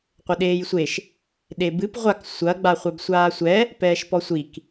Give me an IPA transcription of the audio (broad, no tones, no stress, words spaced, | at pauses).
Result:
qʷɘɗeːjsʷeʃ | ɗebɨp ʁʷak sʷɐ ɡ͡baχʷabsʷaːsʷɛ | pɛːʃpɔsʷik